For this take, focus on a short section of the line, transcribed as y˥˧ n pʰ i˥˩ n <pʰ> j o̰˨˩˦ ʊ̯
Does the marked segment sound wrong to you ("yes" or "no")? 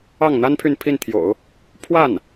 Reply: yes